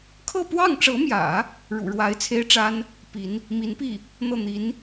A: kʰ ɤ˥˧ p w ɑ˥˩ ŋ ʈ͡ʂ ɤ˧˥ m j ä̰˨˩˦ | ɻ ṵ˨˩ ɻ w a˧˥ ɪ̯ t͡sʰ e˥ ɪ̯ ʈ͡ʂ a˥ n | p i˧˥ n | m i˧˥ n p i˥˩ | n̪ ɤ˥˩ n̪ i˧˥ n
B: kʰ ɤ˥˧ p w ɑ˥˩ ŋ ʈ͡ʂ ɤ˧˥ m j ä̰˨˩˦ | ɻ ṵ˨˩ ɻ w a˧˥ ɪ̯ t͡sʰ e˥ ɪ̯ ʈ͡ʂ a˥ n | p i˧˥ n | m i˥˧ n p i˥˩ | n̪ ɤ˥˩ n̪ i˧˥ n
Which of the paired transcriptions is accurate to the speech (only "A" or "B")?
A